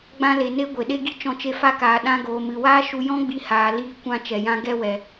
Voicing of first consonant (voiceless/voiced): voiced